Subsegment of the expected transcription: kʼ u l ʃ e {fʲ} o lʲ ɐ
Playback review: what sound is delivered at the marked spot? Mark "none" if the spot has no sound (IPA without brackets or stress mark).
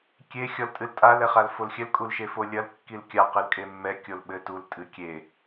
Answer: f